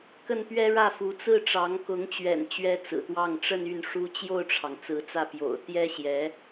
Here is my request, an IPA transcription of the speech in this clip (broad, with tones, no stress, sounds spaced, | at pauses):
k ə˥˩ n p ɥ ɛ˥ ɻ ä˥˩ f u˧˥ t͡s ɹ̩˥˩ ʈ͡ʂ ɑ˧˥ ŋ k ʊ˧˥ ŋ t͡ɕ ɥ ɛ̰˨˩ n t͡ɕ ɥ ɛ˥ t͡s ɹ̩˨˩ t̪ w ɑ˥˧ ŋ ʈ͡ʂ ə˥˧ n y˥˩ n ʂ u˥ t͡ɕ j o˥˩ ʊ̯ ʈ͡ʂʰ ɑ˩ ŋ t͡s ɹ̩˧˥ t͡s ä˥˩ p j o̰˨˩ ʊ̯ t̪ j ɛ˥ ɕ j ɛ˧˥